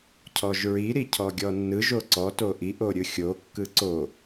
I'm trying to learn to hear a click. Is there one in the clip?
yes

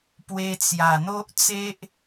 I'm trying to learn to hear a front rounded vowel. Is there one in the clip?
no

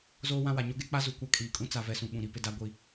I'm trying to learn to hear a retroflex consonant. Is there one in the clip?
no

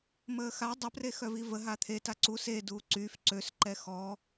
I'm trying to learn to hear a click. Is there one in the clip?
yes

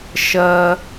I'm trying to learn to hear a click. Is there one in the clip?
no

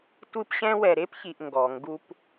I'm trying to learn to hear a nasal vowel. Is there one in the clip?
yes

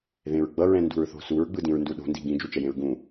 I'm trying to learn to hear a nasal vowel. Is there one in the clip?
yes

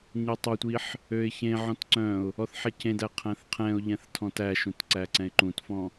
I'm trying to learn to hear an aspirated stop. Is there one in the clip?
yes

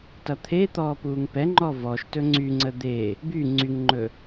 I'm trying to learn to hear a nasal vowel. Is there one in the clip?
no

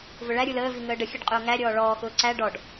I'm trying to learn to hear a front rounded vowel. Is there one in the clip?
no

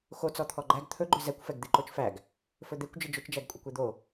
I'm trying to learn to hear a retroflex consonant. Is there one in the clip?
no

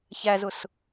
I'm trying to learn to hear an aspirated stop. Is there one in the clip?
no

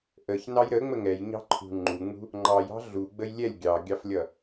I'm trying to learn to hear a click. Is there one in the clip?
yes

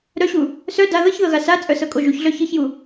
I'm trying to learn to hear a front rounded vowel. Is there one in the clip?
yes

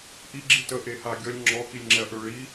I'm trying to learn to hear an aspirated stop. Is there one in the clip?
no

